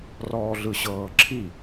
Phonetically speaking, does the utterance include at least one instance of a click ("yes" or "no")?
yes